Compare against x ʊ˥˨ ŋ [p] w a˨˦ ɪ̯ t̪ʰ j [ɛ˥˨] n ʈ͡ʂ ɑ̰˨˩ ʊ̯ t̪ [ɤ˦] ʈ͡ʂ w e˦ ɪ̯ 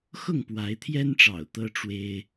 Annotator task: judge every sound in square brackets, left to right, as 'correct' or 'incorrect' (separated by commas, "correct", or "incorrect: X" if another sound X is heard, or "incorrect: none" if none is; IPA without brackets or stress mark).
correct, incorrect: ɛ˦, correct